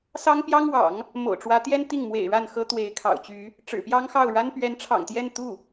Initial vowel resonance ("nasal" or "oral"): oral